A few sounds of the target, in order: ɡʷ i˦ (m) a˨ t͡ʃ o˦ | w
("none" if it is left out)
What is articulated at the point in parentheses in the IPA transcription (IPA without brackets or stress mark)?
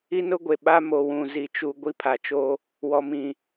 pʰ